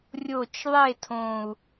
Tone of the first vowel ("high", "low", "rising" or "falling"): falling